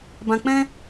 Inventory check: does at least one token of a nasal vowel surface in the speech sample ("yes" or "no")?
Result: yes